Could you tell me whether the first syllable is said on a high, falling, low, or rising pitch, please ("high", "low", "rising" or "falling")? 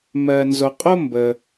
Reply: low